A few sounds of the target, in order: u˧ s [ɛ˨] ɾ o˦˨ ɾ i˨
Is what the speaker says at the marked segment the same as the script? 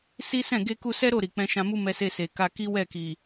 no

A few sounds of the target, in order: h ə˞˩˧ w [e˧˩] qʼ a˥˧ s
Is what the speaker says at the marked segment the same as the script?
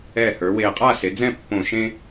yes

